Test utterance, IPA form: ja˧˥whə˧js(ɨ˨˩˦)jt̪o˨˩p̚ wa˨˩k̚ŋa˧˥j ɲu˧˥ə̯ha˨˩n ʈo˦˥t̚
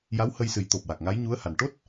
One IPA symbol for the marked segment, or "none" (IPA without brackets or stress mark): ɨ˨˩˦